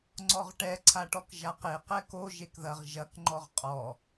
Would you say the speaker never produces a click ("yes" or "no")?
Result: no